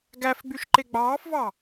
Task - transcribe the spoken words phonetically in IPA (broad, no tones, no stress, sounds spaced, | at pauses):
ɡ æ f ɡ͡b y ʃ ǃ e ɡ͡b ɑː f v ɑ